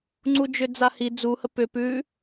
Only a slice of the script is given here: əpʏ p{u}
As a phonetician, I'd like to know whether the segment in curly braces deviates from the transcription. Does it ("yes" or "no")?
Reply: yes